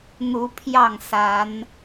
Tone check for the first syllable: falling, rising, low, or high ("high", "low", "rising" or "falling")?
rising